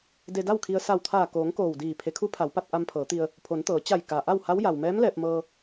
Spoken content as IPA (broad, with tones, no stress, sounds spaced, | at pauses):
d e˧ d a˥˨ w kʰ i˧ ə̯ s a˧˩ w t̪ʰ aː˧˩ k oː˩˧ ŋ k oː˧˩ w d iː˧˩ pʰ e˩˧ kʰ u˧˥ pʰ a˩˧ w p a˧ t̚ ʔ a˧ m pʰ ɤː˩˧ t̪ i˧ ə̯ | pʰ o˩˧ n t̪ ɤː˩˧ t͡ɕ a˧˩ j k a˩ ʔ a˥˨ w h a˧˥ w j a˩ w m ɛː˧˥ m l ɛː˧ p̚ m ɤː˧